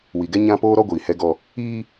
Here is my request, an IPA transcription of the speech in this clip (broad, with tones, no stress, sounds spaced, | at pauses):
w i˨ ɡ ɛ˦ ɲ ã˦ p oː˦ ɾ ɔ˦ ɡʷ iː˨ h ɛ˦ ɡ ɔ˦ | iː˦